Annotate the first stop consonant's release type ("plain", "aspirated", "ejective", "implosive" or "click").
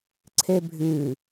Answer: click